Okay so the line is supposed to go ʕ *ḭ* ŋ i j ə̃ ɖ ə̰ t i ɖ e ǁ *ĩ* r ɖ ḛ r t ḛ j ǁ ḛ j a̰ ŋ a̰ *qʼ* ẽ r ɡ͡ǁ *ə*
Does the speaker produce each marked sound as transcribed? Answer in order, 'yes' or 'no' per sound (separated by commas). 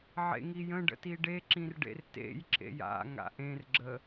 no, yes, no, yes